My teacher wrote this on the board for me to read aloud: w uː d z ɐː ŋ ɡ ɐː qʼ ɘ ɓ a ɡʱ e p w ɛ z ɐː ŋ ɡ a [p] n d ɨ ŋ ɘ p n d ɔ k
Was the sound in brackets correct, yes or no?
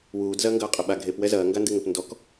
no